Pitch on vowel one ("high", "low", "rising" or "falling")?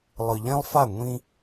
low